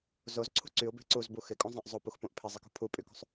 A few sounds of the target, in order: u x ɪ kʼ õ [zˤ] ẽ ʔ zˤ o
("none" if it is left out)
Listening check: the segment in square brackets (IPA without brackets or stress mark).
zˤ